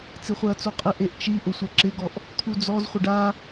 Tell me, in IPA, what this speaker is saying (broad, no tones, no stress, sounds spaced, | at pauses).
t͡s i χʷ ɛ ɐ̯ t͡s o qʼ ɪ ʔ e ʔ t͡ʃ i ʔ ʊ sʷ ɛ ǁ ɪ ɡ ɔ ʔ | t̪ʰ u d͡z ɔ z χʷ ɪ ɖ a